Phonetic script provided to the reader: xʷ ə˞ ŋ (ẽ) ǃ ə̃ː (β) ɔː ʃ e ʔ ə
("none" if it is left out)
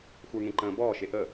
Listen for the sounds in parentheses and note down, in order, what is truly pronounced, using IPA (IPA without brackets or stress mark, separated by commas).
ẽ, b